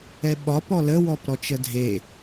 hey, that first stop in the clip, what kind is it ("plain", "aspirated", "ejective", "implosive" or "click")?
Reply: implosive